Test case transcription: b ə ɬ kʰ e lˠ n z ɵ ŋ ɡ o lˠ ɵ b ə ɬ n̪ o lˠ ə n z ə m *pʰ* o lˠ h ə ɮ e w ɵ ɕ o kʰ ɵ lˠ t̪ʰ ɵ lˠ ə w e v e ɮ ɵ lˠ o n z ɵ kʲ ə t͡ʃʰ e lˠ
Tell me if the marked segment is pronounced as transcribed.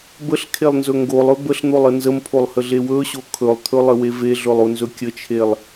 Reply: yes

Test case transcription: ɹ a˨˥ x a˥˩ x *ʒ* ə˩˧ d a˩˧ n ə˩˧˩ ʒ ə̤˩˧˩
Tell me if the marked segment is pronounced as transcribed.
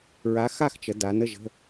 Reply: no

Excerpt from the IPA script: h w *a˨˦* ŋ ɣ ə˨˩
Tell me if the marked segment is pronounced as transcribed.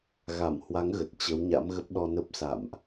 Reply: yes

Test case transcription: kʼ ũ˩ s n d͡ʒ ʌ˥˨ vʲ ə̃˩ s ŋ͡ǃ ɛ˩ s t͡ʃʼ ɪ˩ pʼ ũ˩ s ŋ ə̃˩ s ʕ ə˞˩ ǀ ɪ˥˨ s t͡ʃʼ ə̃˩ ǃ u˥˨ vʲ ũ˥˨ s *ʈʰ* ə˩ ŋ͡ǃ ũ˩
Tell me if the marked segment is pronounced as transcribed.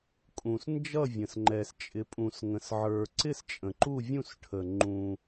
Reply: yes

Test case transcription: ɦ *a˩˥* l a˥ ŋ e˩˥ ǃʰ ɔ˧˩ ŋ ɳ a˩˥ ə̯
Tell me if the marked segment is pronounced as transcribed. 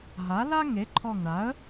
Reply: yes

